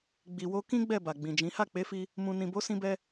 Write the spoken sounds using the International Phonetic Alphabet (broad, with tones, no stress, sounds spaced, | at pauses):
ɡ͡b i˨ w o˧ k ĩ˦ ɡ͡b ɛ˦˨ b a˨ ɡ͡b ĩ˨ d͡ʒ ĩ˨˦ h a˦˨ k͡p e˨˦ f i˧ | m ũ˨ n ĩ˨ b o˨˦ s ĩ˦ b ɛ˦